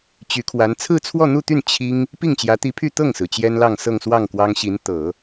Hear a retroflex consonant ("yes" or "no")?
no